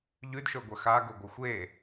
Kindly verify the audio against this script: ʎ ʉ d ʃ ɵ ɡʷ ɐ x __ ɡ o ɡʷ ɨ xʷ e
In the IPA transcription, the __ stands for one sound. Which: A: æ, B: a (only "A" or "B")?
B